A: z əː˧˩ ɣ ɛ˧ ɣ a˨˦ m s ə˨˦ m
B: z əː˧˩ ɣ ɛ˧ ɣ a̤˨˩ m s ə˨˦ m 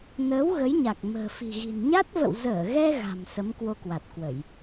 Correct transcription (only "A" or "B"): B